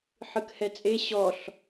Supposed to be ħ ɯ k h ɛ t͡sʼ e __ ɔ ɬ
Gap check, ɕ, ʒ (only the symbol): ɕ